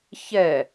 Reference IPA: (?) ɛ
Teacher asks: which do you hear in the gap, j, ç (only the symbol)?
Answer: ç